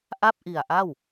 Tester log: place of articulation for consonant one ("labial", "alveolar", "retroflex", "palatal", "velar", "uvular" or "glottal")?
glottal